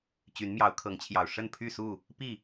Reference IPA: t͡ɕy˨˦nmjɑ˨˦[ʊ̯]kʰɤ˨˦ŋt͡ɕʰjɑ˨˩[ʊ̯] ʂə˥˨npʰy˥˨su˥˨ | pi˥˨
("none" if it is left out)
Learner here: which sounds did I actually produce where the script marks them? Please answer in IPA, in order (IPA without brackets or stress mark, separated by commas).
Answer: ʊ̯, ʊ̯